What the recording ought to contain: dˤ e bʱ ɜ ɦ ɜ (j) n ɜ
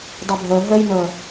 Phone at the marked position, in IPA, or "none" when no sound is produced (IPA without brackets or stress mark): j